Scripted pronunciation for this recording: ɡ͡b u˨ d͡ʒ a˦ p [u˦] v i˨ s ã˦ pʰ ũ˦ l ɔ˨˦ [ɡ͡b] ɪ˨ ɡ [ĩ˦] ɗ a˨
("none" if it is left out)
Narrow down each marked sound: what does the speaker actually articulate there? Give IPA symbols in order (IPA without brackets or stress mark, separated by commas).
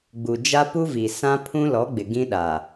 u˦, ɡ͡b, ĩ˦